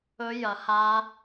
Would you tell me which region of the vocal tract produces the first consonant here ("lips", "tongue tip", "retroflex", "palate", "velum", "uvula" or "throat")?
palate